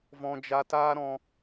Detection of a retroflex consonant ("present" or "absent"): absent